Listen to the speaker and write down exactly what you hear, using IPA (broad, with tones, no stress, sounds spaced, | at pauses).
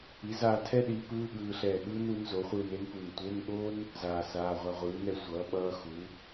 i˩˥ z aː˧ tʰ ɛ˥ ɗ i˩˥ p ɯː˧˥˧ ɠ ɯː˧ ɬ ɛː˧˩ ɠ ɯː˥ n u˩˥ n z o˩˥ χʷ ɯː˧ n e˥ n p u˧˩ n tʷ e˧˥˧ n ɠ o˥ n | z aː˧ s aː˧˥˧ ʁʷ a˥ ʁʷ ɯː˩˥ n ɛ˧ sʷ ʌː˩˥ ɓ ʌː˧˥˧ x u˩˥